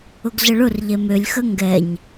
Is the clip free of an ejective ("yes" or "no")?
yes